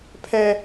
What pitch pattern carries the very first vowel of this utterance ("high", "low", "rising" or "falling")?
high